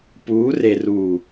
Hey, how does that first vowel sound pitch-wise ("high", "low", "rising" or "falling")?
rising